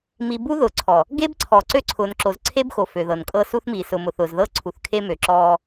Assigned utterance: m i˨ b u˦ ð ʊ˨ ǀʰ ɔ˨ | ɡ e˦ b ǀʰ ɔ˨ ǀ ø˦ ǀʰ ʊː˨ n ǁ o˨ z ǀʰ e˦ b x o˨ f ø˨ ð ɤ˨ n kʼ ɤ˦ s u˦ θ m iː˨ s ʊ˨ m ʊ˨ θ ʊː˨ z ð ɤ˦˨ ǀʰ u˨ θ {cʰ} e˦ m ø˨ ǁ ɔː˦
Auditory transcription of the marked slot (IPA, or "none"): kʰ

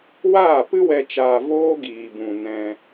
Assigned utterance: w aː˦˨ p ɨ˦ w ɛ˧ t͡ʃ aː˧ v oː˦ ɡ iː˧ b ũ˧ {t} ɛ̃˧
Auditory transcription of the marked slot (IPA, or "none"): n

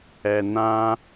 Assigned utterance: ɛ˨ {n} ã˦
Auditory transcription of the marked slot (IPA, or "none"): n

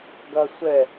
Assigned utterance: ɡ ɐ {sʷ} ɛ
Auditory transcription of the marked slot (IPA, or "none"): sʷ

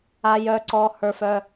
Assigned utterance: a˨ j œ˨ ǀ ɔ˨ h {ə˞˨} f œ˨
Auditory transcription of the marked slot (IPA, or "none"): ə˞˨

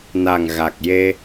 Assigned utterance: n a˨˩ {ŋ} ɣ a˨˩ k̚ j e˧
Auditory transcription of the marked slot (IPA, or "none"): ŋ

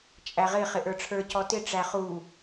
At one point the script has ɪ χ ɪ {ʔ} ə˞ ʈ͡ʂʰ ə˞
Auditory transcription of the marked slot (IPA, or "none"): ʔ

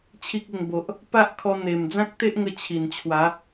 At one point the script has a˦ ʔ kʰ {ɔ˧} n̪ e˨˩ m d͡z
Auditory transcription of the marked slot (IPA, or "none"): ɔ˧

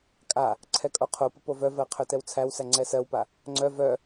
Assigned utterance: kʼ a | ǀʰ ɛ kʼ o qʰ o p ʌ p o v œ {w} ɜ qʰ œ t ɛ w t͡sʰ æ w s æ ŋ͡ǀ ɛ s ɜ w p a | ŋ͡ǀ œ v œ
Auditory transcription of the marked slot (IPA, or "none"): v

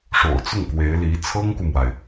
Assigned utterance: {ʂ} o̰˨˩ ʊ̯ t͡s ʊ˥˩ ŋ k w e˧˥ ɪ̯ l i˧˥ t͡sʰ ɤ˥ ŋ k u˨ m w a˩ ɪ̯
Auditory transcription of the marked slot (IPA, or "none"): ʂ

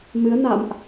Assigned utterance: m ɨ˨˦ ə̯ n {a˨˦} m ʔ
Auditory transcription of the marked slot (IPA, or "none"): a̰˧˨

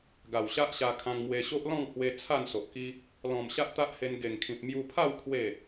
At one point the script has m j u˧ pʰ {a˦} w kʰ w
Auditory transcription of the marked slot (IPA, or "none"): a˥˧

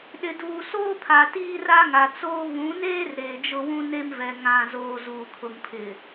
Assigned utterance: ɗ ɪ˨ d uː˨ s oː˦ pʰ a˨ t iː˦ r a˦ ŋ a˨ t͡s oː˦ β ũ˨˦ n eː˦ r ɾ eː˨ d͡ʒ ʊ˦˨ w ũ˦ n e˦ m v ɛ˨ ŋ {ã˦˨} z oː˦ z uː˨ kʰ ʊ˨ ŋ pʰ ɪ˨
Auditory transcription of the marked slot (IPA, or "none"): ã˦˨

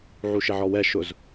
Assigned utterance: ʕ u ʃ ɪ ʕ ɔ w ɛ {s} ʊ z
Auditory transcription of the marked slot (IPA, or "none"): ʃ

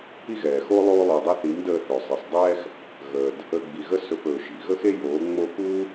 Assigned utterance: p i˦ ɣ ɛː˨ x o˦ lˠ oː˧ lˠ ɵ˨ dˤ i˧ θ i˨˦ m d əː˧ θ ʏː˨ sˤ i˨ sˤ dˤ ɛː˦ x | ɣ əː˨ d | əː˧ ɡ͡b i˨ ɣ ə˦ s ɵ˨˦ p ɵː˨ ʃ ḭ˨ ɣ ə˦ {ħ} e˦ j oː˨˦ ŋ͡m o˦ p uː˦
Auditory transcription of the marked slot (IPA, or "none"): x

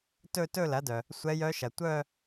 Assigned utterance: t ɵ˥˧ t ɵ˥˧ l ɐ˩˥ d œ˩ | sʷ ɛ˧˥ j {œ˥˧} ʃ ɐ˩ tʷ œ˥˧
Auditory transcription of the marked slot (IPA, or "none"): œ˧˥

